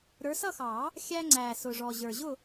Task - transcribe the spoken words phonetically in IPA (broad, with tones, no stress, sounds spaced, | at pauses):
ɾ ə˞˨˥ s ʌ˥˨ x ɑː˨˩˦ | xʲ æ˦ ŋ͡ǀ æ˨˩ s ʊ˨˩ ʐ ɔ˨˩ ʑ ə˞˨˩ ʑ ʊ˥˨